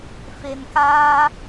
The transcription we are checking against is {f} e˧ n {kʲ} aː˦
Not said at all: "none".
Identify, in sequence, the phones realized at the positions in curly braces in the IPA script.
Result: f, k

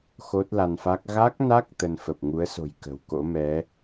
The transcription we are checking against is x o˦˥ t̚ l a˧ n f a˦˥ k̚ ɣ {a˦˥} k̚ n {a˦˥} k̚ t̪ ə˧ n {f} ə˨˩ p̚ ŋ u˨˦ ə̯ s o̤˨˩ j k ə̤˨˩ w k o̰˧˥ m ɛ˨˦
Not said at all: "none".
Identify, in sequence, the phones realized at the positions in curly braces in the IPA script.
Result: a˦˥, a˦˥, f

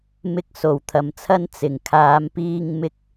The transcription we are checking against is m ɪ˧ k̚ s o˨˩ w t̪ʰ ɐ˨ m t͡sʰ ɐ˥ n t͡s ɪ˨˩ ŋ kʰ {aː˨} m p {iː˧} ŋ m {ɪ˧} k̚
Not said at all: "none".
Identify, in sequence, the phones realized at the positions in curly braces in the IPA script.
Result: aː˨˧, iː˧, ɪ˥

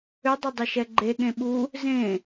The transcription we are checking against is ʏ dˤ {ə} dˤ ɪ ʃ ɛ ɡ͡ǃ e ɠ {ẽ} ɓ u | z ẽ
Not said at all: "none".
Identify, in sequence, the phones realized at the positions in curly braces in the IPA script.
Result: ə, ẽ

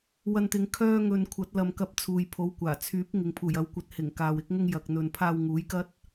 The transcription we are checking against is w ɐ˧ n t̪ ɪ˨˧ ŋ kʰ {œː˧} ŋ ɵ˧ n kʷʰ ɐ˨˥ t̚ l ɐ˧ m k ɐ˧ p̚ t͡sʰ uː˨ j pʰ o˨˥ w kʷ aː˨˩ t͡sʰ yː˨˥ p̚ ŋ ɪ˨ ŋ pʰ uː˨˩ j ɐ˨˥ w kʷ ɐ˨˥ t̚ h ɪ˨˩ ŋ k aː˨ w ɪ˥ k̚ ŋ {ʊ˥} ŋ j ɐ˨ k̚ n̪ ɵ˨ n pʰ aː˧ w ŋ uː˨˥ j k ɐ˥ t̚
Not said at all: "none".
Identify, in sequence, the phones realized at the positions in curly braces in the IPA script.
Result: œː˥, ʊ˥

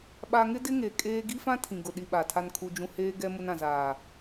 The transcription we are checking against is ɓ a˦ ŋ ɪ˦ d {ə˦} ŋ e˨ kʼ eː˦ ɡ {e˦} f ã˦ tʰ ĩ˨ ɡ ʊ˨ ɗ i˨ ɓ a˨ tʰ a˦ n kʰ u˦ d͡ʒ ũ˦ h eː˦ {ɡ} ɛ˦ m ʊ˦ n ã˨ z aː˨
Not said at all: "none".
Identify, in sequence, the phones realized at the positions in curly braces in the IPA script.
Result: ɪ˦, i˦, ɡ

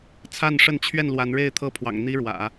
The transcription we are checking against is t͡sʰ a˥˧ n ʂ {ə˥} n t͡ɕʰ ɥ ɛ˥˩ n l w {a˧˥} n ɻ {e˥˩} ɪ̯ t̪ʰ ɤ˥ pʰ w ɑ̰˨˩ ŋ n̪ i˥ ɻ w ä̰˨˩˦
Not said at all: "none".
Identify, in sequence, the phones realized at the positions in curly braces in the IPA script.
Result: ə˥˧, a˧˥, e˥˩

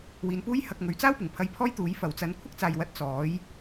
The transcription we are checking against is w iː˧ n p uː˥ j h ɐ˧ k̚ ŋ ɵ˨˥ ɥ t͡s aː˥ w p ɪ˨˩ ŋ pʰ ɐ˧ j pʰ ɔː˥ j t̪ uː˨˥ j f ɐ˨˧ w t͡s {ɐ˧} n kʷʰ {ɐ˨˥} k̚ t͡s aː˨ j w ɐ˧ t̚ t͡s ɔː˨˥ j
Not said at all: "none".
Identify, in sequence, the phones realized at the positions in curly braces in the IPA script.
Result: ɐ˧, ɐ˥

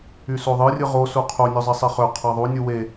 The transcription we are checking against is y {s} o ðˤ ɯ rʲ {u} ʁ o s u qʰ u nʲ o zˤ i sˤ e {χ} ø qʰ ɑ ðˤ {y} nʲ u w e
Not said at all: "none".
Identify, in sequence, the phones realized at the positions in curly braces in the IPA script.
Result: s, ɯ, χ, u

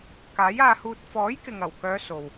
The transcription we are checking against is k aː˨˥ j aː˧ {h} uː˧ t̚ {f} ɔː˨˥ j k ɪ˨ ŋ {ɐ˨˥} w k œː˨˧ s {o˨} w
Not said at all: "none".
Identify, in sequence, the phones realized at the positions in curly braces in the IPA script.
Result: h, f, ɐ˨˩, o˨

